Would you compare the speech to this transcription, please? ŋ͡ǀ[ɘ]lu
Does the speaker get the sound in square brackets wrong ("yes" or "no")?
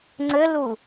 no